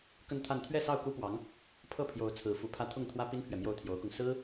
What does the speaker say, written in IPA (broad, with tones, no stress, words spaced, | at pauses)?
kə˥˧nt̪ʰa˥˧n t̪ʰɥɛ˥˧sɑ˥˩ʊ̯ku˥pwɑ˧˥ŋ | pʰɤ˥˩pʰjo˧˥ʊ̯ t͡sʰɹ̩˧˥fu˧˥pʰä˥ t̪ʰʊ˥˩ŋt̪ʰwä˥ pi˥npʰɥɛ˨ mjo˥˩ʊ̯t̪ʰjo˧˥ʊ̯kʊ˧ŋ sɹ̩˥